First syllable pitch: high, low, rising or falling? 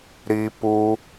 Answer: high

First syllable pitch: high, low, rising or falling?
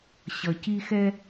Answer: low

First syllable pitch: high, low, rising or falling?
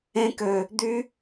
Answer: high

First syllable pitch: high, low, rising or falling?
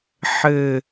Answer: falling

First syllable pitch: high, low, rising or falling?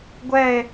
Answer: falling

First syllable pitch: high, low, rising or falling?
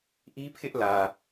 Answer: high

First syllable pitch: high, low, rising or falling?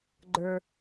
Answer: low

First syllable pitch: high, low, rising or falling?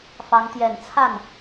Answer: rising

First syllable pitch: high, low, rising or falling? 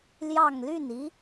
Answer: falling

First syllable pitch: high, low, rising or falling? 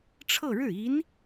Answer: falling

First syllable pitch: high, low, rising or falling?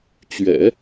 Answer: low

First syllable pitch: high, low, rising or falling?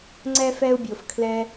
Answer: high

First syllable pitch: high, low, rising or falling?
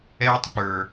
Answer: high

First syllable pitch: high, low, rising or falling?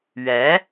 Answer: rising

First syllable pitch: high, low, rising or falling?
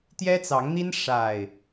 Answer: high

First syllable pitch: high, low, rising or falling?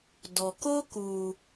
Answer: low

